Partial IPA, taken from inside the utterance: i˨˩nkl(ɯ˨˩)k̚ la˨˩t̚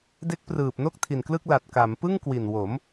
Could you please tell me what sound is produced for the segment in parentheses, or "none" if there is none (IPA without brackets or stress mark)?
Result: ɯ˥˩